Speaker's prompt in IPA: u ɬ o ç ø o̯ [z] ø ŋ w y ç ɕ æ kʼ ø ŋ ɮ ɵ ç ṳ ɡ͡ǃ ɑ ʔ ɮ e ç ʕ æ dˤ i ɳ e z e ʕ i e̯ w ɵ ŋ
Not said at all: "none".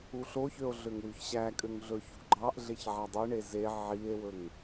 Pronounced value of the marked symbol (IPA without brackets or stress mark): ɮ